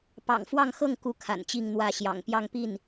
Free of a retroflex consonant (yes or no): yes